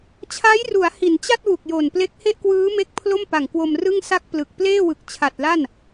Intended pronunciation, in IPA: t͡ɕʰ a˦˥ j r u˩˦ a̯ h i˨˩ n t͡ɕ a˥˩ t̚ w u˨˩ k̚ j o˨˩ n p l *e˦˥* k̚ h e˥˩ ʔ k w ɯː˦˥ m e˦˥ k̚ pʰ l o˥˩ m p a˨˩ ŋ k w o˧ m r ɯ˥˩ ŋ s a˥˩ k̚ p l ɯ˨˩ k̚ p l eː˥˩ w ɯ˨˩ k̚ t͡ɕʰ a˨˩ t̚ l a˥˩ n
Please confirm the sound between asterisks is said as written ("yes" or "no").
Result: yes